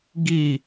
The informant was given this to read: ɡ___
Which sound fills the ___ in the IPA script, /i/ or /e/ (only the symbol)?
i